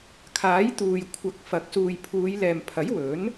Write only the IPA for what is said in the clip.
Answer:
kʰ aː˨˥ j t̪ uː˨ j kʷʰ ɐ˨˥ k̚ f ɐ˨ k̚ s uː˨ j pʰ uː˨˧ j l ɛː˨ m pʰ ɐ˨˥ j w ɵ˨˥ n

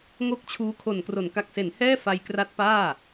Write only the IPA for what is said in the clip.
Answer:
ŋ o˥˩ k̚ t͡ɕʰ uː˦˥ kʰ o˨˩ n k r o˩˦ n k a˨˩ k̚ s e˩˦ n h ɛː˥˩ f a˧ j k r a˦˥ t̚ p aː˥˩

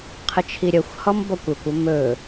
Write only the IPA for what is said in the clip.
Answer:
qʰ ə t͡ʃʰ i ɾʲ ə xʷ h ɔ m b ɔ kʷ ɵ kʷ o m ɵ

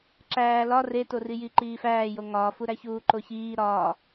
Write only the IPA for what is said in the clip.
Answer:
ǁ æː l ɒ r e t o r i j i ǃ iː f æː j o ŋ ɒː f u ɾ æ ç uː ǃ o ç iː ɾ ɒː

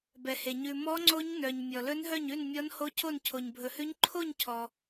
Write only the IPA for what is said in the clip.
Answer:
b ɛ˧ h e˧ ɲ ʉ˧ m ɔ˦˥ ŋ͡ǀ o˦˥ ɲ n œ˧ ɲ mʲ ɔ˧ l ɵ˦˥ n ɦ œ˥˧ ɲ ʉ˥˧ n mʲ ɔ˦˥ n h o˦˥ cʰ o˥˧ n cʰ o˧ ɲ bʱ ɵ˧ h ʉ˦˥ ɲ ǃʰ o˥˧ ɲ cʰ ɔ˧

